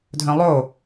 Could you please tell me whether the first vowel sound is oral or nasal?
nasal